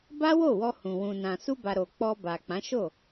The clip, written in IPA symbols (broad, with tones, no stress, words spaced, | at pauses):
ba˦wo˦˨wɔ˧hũ˨ wũ˨nã˨ su˧ba˨ ɾo˨k͡pɔ˧ba˨k͡pã˨˦ ʃo˦˨